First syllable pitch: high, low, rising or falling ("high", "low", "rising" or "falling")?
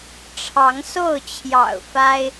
rising